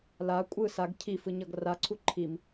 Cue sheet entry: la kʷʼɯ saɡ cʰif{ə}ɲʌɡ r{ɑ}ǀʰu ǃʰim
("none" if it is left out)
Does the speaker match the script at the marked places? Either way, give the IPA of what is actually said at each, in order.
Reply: ɯ, a

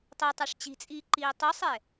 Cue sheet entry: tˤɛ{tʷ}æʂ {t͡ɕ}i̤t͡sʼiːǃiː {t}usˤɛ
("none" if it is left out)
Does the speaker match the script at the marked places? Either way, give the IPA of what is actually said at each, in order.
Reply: tˤ, t͡ɕ, tˤ

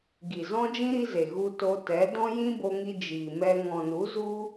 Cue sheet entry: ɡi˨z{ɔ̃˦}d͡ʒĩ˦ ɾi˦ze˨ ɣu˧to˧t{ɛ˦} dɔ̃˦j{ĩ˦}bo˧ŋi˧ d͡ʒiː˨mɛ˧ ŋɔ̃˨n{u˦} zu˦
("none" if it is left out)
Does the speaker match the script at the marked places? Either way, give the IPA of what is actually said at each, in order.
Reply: ɔ̃˦, ɛ˨˦, ĩ˦, u˨˦

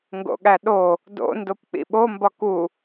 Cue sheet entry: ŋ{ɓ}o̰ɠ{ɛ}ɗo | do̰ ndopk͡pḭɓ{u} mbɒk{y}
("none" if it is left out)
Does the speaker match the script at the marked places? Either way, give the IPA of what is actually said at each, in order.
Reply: ɡ, æ, o, u

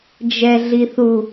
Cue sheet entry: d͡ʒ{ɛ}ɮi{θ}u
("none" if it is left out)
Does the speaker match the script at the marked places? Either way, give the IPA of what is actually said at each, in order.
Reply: ɛ, θ

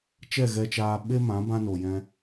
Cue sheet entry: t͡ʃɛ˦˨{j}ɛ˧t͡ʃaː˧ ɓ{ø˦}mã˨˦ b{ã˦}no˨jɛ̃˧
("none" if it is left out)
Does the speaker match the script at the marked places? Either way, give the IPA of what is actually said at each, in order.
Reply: ɣ, e˦, ã˦

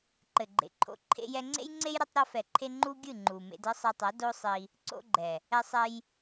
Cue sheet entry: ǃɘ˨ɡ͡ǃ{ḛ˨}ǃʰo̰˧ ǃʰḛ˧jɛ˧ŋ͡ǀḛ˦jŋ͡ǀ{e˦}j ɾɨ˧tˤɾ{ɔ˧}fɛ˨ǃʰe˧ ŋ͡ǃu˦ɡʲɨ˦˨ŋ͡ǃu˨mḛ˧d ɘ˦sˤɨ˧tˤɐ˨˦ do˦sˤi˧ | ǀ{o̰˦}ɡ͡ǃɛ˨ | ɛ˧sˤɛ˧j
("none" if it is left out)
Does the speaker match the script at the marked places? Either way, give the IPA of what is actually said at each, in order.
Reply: ḛ˨, e˦, ɔ˧, o̰˧

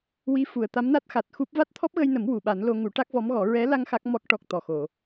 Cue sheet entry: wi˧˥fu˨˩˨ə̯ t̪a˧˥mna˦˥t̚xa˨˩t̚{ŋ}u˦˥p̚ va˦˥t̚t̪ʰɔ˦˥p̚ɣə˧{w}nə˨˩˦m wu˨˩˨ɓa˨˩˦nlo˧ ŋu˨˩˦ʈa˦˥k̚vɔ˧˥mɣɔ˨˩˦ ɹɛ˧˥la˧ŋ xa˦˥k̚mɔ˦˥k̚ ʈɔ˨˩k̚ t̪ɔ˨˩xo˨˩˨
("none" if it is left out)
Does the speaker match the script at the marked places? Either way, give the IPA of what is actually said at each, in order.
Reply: x, j

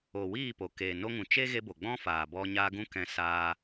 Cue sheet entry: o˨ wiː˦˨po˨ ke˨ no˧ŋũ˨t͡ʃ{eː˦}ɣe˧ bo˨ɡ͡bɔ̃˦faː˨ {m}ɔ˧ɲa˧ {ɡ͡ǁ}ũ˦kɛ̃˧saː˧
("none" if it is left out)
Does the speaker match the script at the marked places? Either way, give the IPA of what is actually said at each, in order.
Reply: e˦, b, ɡ

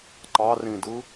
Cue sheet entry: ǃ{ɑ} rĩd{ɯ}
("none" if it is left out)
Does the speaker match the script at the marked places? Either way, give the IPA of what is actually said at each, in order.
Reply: ɑ, ɯ

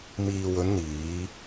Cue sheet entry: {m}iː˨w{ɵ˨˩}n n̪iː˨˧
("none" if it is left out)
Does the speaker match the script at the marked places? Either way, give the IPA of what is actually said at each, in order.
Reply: m, ɵ˨˧

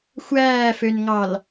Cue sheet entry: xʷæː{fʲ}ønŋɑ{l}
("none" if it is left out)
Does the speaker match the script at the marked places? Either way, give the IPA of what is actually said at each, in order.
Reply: f, l

